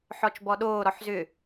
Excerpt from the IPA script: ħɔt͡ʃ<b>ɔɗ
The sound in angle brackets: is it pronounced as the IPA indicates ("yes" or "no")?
yes